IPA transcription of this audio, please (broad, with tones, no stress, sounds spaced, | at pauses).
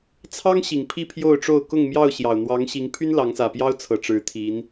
t͡sʰ ɑ˦ ŋ ɕ i˨˩ ŋ pʰ i˥˨ pʰ j o˥˨ ʊ̯ ʈ͡ʂ o˥˨ ʊ̯ k ʊ˥˨ ŋ m j ɑ˥˨ ʊ̯ ɕ j ɑ˨˩ ʊ̯ n̪ w ɑ˨˦ ŋ ɕ i˨˦ ŋ pʰ y˦ n l ɑ˨˦ ŋ s ä˨˩ p j ɑ˦ ʊ̯ t͡sʰ ɤ˨˩ ʈ͡ʂ ɻ̩˨˦ t̪ʰ i˨˦ n